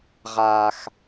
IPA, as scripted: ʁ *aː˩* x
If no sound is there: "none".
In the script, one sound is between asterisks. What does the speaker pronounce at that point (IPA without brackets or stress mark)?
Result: aː˩